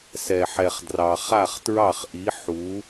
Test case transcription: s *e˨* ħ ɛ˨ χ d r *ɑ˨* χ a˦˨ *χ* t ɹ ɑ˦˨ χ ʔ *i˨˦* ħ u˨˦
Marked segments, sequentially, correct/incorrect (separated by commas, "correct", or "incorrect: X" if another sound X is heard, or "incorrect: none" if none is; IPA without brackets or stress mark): incorrect: ɛ˨, correct, correct, correct